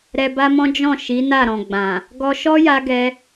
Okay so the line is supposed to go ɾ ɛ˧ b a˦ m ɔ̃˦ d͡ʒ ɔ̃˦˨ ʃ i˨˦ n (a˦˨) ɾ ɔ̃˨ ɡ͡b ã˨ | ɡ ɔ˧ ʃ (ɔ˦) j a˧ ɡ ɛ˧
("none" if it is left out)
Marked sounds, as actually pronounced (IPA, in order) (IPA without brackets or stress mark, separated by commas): a˦˨, ɔ˦